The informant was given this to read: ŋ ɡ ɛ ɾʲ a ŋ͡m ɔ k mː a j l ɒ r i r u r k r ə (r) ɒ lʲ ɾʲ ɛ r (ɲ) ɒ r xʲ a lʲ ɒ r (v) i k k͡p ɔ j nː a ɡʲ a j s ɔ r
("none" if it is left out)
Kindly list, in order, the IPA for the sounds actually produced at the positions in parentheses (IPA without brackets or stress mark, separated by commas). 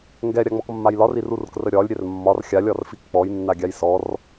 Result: ɾʲ, mː, f